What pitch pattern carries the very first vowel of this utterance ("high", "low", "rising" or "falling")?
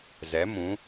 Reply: rising